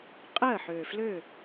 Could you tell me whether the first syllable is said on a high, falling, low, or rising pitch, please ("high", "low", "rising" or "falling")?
falling